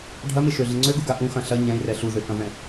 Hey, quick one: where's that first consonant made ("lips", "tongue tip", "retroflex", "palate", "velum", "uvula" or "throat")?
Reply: retroflex